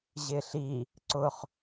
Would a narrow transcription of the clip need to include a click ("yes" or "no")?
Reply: yes